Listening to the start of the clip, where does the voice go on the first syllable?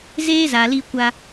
high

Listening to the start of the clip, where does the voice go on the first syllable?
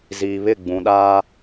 low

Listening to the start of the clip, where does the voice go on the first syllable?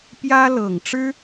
high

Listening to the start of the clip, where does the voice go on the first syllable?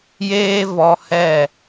high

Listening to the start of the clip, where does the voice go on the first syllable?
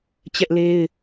high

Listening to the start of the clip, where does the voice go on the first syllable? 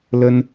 high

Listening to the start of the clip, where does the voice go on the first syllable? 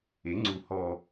rising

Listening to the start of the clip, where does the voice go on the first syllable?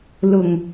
low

